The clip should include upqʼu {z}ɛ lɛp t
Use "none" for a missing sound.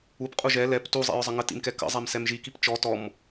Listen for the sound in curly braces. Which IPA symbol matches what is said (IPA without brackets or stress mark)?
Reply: ʒ